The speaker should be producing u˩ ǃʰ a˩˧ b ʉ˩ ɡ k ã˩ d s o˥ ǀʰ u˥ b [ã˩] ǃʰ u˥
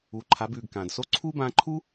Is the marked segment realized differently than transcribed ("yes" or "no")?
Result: yes